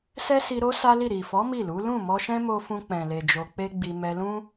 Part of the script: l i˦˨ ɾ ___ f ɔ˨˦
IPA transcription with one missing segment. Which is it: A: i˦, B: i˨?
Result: B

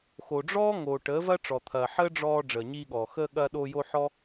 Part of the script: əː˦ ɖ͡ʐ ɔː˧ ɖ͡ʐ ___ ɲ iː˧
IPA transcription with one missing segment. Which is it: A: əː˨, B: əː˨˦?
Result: A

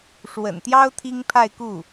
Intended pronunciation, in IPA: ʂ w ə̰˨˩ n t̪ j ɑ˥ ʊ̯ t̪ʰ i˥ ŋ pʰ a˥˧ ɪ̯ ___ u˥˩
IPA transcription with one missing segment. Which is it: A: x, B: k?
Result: B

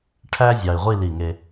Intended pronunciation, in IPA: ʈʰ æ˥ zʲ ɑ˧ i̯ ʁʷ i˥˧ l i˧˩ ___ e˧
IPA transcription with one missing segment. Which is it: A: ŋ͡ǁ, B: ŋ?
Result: B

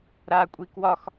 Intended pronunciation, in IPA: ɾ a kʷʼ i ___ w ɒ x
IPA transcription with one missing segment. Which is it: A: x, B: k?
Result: B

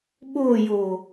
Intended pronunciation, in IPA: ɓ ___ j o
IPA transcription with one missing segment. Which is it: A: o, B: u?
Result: A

